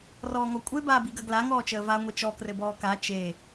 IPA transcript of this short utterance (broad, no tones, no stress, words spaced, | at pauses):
rɔːŋɔkʷʼe baːbiɡɐɡla ŋɔːt͡ʃəːva ŋʷit͡ʃɔ krɘbɔːka t͡ʃe